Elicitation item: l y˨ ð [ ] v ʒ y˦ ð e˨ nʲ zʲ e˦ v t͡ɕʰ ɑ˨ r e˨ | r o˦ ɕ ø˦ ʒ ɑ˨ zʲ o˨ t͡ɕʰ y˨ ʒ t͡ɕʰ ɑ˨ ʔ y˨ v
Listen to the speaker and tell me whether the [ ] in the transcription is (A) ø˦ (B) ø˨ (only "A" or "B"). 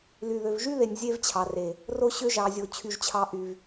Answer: B